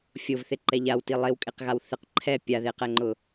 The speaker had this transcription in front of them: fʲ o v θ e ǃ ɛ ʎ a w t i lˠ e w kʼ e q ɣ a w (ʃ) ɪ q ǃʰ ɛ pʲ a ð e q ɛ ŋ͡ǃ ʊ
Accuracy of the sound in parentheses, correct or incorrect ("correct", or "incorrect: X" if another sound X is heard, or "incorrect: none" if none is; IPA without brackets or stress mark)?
incorrect: θ